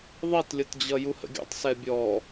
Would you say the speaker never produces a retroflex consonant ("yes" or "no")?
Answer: yes